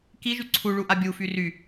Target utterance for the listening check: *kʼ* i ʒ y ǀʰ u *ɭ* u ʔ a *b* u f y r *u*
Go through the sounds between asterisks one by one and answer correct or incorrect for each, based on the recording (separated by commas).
incorrect, correct, incorrect, incorrect